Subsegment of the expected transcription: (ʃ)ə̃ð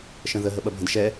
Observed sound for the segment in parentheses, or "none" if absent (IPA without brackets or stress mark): ʃ